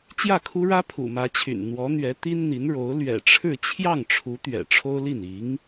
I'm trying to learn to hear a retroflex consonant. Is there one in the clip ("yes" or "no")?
yes